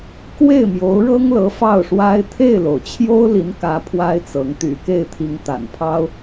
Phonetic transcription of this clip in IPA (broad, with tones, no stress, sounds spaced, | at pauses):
k w e˥˩ ɪ̯ m j o˧˥ ʊ̯ ɻ ɤ˥ ŋ l ɤ˧˥ f ɑ˥˩ ʊ̯ ʂ w a˥ ɪ̯ t̪ʰ e˥˩ ɪ̯ l o˩ ʊ̯ t͡ɕʰ j o˥ ʊ̯ l i˧˥ n k ä˧˥ pʰ w a˥ ɪ̯ t͡s ɤ˧˥ ŋ t̪ y̰˨˩ k e˥˩ ɪ̯ t̪ʰ i˧˥ ŋ t̪ a̰˨˩ n pʰ ɑ˥ ʊ̯